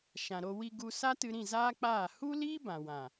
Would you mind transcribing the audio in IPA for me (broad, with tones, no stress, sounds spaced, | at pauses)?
ʃ ã˨ ɾ o˧ w i˧ ɡ u˧ s a˦ t ɨ˧ ɾ ĩ˦˨ z aː˦ k͡p aː˦˨ h u˦ l iː˦ b ã˨ w ã˨